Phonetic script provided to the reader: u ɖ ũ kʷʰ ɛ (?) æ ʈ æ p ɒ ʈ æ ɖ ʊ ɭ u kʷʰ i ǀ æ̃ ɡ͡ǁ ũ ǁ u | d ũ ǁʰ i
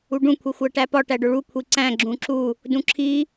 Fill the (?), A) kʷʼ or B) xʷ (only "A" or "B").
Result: B